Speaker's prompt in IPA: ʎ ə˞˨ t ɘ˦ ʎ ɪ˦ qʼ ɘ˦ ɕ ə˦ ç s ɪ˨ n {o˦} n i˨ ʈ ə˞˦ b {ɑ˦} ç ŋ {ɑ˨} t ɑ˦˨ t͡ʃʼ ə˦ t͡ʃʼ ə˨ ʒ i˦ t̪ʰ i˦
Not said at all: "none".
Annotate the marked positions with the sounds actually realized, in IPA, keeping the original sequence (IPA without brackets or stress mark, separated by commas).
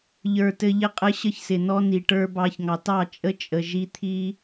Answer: ɔ˦, ɑ˦, ɑ˨